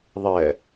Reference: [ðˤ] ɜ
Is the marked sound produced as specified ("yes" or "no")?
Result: yes